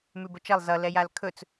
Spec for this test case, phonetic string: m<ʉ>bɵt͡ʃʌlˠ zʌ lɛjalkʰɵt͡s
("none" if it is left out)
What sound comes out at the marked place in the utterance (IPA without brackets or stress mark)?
ʉ